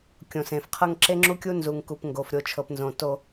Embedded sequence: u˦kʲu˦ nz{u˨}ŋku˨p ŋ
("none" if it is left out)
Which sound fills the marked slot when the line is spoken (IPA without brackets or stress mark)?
u˨